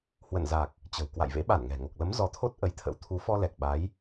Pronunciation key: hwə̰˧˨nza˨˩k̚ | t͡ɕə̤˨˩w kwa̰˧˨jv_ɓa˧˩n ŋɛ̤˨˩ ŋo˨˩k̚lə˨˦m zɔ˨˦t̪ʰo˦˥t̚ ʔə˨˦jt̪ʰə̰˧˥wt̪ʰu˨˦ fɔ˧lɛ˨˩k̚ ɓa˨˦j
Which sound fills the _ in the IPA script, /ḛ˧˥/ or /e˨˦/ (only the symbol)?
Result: ḛ˧˥